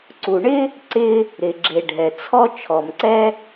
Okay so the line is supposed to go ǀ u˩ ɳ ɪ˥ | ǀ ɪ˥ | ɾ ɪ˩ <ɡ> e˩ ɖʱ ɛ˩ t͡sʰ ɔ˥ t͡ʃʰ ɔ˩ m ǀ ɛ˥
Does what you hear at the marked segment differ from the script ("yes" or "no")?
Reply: yes